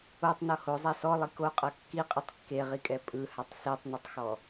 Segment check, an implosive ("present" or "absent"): absent